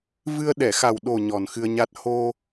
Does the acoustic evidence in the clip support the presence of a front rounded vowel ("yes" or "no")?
no